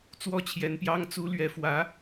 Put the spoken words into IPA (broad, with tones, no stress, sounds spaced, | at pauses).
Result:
t͡s w ɔ˥˩ t͡ɕʰ j ɛ˧˥ n p j ɑ˥ ŋ t͡s u˧˥ l ɥ ɛ˧˥ f w ä˧˥